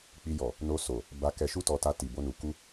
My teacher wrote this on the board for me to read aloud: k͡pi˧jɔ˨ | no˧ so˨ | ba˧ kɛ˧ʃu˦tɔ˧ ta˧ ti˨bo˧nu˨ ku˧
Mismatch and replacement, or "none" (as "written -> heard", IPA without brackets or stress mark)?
none